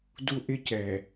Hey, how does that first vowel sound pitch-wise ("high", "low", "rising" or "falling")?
high